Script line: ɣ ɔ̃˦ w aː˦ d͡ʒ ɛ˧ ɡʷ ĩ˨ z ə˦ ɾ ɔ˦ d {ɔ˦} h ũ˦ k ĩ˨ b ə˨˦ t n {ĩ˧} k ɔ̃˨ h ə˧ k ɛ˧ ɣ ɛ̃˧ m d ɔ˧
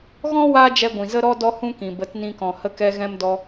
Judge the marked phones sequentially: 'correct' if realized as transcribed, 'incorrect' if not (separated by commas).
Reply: incorrect, correct